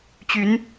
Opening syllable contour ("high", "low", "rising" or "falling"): rising